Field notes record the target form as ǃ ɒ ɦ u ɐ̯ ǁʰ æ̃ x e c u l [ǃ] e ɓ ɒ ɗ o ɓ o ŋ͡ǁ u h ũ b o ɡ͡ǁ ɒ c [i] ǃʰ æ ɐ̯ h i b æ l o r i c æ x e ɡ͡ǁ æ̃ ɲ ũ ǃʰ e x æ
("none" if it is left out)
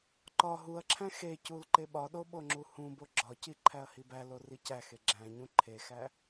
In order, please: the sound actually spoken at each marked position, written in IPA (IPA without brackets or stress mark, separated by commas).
ǃ, i